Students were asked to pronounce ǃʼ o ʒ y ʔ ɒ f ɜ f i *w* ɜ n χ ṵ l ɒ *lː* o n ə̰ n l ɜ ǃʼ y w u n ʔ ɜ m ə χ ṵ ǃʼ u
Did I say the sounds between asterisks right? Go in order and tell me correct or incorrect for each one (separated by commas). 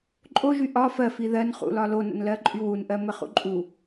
incorrect, incorrect